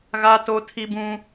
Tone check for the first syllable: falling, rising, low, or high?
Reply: high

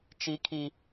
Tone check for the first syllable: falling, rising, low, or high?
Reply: high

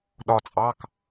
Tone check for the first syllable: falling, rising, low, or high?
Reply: falling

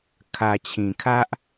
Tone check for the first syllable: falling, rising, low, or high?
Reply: low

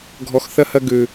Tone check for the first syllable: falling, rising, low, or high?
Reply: low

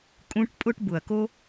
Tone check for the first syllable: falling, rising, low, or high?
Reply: high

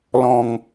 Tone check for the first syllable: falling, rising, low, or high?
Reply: low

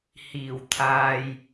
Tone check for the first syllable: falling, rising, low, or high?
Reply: low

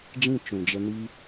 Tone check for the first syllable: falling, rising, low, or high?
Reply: falling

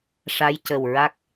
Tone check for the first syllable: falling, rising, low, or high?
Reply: rising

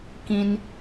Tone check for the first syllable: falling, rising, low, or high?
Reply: high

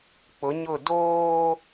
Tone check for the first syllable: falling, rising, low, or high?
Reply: rising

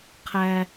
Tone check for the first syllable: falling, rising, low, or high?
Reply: high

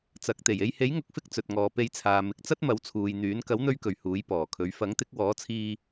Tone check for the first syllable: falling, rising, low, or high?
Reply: rising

